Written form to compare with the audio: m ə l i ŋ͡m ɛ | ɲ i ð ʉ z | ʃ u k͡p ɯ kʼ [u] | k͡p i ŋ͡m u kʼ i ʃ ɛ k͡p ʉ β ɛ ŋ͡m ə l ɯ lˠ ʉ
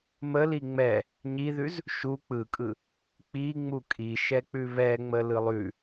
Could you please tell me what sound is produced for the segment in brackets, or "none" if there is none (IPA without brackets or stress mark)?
ɯ